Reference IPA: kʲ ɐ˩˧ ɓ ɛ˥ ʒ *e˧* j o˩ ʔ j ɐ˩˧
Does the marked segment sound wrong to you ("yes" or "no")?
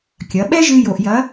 yes